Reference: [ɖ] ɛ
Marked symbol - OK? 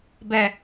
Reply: no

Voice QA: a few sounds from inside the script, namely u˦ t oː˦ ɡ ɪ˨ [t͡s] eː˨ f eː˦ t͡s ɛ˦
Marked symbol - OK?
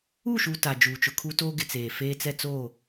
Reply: yes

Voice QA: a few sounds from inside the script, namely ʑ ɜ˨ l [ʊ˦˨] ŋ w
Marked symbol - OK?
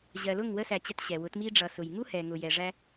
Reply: yes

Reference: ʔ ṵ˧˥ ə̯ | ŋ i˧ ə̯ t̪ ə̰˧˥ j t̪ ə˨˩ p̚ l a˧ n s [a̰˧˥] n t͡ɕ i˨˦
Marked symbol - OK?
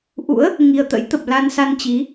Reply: no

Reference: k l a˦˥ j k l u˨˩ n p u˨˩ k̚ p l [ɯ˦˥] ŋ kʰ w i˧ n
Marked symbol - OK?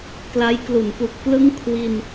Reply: yes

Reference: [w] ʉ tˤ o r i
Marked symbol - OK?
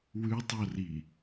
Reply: yes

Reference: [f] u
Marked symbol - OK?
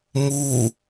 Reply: no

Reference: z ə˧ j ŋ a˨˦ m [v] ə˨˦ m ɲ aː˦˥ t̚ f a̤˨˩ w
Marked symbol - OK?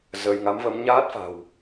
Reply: yes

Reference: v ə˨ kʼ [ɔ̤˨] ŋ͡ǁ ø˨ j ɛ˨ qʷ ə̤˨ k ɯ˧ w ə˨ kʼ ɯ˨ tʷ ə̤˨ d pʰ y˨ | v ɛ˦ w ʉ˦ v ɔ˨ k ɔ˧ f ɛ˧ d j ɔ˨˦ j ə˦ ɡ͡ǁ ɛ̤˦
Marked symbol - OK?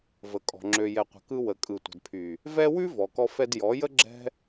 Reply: yes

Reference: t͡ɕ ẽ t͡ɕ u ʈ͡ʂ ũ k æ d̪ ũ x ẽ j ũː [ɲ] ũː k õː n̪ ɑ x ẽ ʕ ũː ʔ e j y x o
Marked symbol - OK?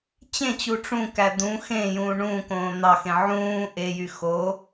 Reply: no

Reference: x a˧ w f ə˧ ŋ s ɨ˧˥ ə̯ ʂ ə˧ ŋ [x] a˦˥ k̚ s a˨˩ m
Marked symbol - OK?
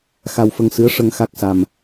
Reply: yes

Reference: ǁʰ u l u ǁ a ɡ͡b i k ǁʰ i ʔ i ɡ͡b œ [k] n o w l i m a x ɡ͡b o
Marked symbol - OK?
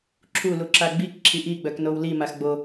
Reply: yes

